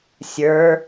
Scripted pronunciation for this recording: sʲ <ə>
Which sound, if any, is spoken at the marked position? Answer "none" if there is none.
ə˞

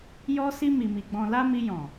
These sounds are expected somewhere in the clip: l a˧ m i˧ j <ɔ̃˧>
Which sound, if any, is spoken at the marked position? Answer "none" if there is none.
ɔ̃˨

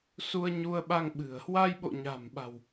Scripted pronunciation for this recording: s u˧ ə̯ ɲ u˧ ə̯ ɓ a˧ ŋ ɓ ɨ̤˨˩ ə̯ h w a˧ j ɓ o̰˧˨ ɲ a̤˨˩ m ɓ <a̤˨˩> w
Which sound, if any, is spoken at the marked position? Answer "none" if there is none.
a̤˨˩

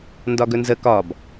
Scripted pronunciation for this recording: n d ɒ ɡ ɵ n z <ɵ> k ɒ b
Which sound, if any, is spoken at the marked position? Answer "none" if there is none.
ə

